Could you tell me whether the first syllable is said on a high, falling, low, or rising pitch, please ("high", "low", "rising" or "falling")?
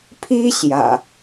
high